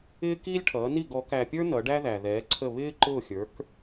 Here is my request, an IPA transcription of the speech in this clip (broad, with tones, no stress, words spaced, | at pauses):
ɪː˥kiː˥lʲʈʰʌː˩˥ ni˥˩ɡɔ˩˥kæ˧pʲə˞˥ nʌ˩˥ɖæ˥ðæ˩ðɛː˩˥ ǀʰə˥˩ βɪː˥ǃʊ˥˩xʲə˞˩˥k